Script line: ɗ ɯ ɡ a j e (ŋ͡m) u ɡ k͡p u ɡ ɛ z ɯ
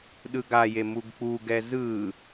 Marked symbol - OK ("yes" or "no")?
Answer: no